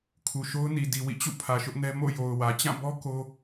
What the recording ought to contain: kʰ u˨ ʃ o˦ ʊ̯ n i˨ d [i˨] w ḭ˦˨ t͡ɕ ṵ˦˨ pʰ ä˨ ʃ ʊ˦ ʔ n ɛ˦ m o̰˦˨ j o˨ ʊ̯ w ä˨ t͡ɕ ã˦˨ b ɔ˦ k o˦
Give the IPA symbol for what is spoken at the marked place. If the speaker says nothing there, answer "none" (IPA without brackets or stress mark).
i˨